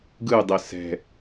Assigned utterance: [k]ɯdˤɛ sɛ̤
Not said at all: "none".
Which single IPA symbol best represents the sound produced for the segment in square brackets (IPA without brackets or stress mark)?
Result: ɡ